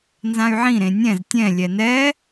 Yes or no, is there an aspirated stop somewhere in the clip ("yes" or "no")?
no